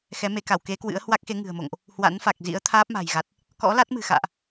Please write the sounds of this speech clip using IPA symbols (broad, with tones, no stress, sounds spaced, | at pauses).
x ɛ˨˦ m e˨˦ k a˧˩ w k e˨˦ k w ɨ̰˧˥ ə̯ h w a˦˥ k̚ x e˨˦ ŋ ɨ̤˨˩ ə̯ m o̰˧˨ ŋ ʔ | h w a̰˧˥ n f a˨˩ k̚ z ḭ˧˥ ə̯ t̪ʰ aː˦˥ p̚ m a̤˨˩ j ɣ a˨˩ t̚ | k ɔ̰˧˥ l a˦˥ t̚ m ɨ̤˨˩ x a̰ː˧˨ ʔ